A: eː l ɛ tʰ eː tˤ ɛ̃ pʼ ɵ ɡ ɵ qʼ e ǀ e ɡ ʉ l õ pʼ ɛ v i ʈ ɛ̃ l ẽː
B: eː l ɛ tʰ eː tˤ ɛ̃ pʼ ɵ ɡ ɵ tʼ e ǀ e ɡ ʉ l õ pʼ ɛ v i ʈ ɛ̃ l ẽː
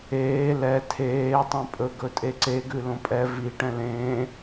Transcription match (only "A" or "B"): B